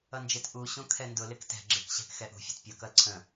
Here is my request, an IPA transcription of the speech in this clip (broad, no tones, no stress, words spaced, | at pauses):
ʌnd͡ʒɪt ʔuɕũ kʰɛndʊ lɪktɛ̤ ɡ͡ǁɪkɕæ̤k xɛʔṳfʲɛ̤t pʲʌkʌl ǀʰə̃